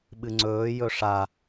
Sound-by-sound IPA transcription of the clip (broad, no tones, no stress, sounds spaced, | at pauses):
ɓ ɨ ŋ͡ǀ ɵː j ɵ ʂ a